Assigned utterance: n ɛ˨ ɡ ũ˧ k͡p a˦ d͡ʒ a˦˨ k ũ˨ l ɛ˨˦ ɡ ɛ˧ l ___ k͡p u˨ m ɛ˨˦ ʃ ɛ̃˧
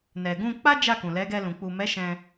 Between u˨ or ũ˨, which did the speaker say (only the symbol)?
ũ˨